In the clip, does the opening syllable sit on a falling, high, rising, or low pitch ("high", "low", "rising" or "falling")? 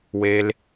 low